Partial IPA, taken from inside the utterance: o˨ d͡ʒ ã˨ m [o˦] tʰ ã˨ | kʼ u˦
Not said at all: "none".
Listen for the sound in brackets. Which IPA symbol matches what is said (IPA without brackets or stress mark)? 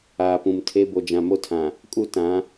o˦